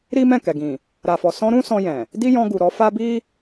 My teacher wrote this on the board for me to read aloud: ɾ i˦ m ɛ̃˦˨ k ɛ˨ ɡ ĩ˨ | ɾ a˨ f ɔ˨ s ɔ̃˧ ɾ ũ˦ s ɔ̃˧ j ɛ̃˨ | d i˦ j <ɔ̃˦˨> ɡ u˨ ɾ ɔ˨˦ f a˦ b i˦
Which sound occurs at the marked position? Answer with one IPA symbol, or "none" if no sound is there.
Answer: ɔ̃˧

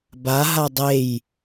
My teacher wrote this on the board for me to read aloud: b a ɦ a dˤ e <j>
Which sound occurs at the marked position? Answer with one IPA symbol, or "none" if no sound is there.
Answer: j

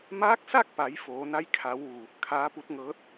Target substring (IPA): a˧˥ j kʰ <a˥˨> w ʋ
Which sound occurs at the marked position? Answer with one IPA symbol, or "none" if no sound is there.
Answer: a˩˧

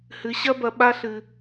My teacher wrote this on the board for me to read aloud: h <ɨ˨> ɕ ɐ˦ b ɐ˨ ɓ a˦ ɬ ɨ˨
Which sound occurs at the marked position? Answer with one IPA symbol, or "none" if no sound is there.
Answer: ɨ˨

